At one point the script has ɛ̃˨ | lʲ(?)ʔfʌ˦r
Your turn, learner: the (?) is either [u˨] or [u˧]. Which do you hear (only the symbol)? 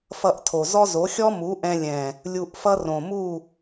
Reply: u˧